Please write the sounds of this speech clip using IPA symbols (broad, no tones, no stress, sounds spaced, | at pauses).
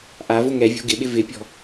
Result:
ʔ a v ʊ ŋ ɛ vʲ o̤ ɡ ɪ ɓ ɪ v ɪ pʲ ɔ̤